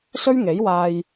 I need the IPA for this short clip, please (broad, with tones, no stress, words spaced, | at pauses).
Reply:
sɵ˥ɥŋe˨˥jwaː˧j